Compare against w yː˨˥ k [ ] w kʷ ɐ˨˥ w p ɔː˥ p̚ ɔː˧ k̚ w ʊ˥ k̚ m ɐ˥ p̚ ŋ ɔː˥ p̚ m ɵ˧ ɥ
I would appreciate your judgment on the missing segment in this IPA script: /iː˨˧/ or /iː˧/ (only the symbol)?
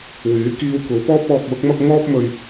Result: iː˧